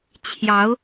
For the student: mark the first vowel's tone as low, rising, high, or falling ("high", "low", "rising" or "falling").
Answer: rising